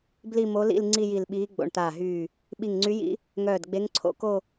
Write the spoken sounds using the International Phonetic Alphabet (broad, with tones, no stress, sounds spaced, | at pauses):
b l i˥˧ m o˧˥ l ḭ˥˧ l ŋ͡ǀ i˥˧ j i˧˩ l ɓ iː˧˥ ɡ͡b o̰˧˩ ɳ t̪ aː˧˩ ɦ yː˧˩ | ɓ i˧˩ ŋ ŋ͡ǀ y˧˥ j ḭ˧˥ | ŋ œː˧˩ d ɡ͡b e˧˥ ŋ ǀʰ o̰˧˥ k o˥˧